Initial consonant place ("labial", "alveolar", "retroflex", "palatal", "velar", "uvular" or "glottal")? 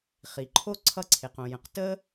uvular